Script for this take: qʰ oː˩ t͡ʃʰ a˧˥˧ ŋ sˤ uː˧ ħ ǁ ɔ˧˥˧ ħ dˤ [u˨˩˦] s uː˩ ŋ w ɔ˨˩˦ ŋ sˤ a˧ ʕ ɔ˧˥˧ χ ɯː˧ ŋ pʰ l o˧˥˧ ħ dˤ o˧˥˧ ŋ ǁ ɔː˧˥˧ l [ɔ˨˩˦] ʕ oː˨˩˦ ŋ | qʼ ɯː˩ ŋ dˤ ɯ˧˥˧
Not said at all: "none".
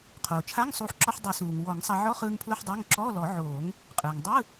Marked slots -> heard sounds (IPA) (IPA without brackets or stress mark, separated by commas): u˨˩˦, ɔ˨˩˦